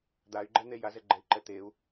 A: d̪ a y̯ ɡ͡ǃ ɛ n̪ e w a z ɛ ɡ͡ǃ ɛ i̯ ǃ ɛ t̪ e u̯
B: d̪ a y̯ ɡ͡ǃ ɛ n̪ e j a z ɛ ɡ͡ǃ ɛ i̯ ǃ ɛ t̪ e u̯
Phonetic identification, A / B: B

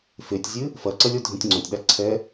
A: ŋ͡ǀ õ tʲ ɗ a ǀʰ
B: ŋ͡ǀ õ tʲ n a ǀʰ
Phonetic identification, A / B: A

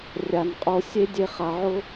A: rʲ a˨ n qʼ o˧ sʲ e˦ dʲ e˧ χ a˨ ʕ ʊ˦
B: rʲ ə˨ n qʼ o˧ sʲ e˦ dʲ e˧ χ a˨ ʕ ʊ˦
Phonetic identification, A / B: A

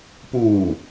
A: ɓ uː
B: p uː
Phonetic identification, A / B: B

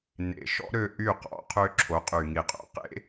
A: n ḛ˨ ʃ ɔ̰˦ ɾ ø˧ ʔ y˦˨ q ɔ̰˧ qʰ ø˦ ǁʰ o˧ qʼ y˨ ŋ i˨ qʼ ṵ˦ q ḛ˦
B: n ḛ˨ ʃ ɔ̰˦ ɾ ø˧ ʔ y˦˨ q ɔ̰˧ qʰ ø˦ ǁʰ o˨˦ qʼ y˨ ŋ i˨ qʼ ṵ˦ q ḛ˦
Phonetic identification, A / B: B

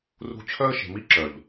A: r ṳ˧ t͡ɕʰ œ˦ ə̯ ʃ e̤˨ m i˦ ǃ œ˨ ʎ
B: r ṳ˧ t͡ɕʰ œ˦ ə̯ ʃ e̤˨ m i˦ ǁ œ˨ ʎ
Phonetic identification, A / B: B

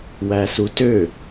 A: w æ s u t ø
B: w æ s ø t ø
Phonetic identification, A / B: A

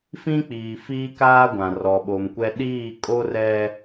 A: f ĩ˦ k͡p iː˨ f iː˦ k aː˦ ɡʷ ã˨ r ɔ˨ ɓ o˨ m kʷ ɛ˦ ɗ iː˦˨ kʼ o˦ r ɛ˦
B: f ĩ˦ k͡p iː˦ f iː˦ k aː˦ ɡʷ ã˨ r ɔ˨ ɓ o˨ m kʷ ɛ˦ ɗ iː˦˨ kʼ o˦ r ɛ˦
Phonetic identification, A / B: A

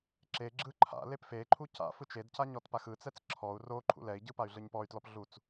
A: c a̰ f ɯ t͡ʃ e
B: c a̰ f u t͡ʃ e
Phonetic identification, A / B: A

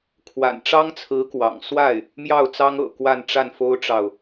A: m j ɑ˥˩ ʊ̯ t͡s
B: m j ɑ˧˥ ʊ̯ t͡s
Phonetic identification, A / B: A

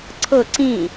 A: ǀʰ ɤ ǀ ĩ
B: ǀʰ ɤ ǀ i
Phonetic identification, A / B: A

